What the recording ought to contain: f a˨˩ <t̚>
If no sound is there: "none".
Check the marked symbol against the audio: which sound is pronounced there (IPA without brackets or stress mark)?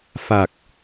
k̚